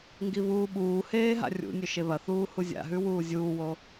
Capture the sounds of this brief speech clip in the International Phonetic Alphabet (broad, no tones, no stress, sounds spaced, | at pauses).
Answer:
ŋ ɡ i β uː ɓ uː h eː ɦ a̰ rʲ ṵ nʲ ɵ ʃ e β ɐ θ uː h u zʲ a̰ ɦ ʉ w uː zʲ uː w o